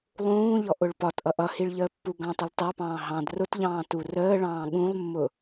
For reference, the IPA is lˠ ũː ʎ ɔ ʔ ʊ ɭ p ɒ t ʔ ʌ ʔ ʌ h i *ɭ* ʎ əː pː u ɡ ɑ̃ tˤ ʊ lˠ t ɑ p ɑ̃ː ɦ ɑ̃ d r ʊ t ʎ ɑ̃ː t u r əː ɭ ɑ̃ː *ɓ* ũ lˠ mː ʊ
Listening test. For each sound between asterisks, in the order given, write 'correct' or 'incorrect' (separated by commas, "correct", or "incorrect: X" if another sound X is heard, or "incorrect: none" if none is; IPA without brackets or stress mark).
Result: correct, incorrect: ɠ